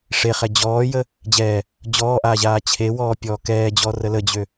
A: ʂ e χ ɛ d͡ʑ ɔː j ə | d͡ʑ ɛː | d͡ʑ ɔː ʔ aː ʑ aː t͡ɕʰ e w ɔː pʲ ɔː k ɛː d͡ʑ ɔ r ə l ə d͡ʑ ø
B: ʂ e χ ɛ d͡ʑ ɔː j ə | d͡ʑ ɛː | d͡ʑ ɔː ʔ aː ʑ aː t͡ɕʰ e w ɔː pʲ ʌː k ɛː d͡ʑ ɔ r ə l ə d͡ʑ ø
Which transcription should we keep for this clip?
A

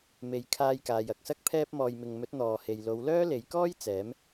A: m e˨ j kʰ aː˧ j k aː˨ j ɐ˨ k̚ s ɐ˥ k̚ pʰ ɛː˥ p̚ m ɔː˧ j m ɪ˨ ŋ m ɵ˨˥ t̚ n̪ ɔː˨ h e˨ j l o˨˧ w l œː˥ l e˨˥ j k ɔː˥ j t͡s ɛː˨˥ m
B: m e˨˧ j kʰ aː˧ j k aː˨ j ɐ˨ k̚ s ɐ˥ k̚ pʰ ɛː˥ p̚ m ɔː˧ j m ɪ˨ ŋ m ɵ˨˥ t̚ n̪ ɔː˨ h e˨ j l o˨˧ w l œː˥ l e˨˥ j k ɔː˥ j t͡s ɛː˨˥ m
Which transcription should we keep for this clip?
A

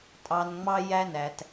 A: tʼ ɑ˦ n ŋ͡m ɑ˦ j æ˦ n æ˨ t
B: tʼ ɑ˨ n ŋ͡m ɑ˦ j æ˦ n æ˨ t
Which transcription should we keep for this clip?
B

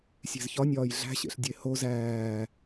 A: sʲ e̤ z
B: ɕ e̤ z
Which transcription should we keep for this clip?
A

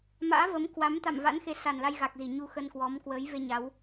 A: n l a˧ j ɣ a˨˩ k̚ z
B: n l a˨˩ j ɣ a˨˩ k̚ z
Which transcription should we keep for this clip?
A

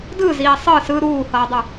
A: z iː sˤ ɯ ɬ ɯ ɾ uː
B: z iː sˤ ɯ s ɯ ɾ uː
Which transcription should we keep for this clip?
B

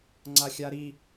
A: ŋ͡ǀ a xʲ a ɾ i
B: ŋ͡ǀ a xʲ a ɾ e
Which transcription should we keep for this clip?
A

